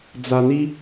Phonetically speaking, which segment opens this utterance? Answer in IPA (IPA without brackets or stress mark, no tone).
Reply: d͡z